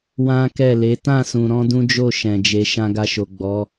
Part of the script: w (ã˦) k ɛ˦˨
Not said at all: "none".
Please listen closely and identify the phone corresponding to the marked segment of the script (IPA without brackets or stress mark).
ã˦